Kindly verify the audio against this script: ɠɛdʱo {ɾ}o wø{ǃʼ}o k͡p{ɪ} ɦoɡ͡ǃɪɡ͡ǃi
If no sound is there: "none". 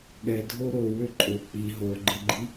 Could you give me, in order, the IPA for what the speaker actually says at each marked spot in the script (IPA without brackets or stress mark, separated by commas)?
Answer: ɾ, ǃʼ, i